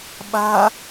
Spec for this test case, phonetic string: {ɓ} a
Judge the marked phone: correct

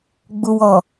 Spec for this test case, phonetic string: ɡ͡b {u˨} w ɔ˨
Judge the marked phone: correct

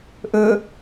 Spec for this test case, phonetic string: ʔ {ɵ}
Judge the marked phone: correct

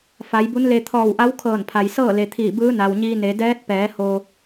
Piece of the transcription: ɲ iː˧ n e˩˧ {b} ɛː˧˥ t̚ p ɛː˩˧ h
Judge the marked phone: incorrect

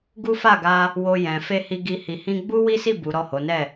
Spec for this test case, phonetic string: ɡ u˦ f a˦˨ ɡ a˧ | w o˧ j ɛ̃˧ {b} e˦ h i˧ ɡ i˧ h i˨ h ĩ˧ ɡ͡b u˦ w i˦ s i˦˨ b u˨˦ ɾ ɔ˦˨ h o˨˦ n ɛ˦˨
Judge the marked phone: incorrect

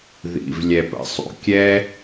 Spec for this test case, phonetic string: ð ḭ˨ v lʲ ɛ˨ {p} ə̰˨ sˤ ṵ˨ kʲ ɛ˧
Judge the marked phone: correct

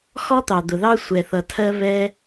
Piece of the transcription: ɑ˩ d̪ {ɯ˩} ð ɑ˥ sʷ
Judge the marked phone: incorrect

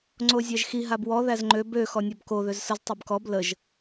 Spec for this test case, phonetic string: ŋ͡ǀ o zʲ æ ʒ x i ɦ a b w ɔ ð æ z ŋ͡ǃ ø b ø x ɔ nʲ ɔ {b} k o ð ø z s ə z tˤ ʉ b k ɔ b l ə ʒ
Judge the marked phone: correct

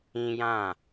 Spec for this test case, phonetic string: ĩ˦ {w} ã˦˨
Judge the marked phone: incorrect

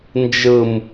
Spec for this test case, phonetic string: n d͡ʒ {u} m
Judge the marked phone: incorrect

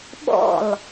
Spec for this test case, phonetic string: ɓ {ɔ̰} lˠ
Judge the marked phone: correct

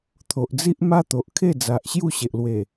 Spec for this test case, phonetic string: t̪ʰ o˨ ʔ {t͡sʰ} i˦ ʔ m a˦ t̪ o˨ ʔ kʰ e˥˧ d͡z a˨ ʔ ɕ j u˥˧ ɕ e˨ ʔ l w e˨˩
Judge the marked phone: incorrect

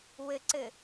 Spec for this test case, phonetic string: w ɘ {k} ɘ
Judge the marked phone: incorrect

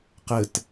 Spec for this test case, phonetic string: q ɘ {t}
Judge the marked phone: correct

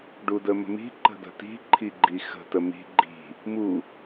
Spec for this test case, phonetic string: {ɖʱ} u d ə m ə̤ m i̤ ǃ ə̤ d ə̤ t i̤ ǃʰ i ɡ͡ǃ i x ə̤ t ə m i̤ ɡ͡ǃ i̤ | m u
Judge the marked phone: incorrect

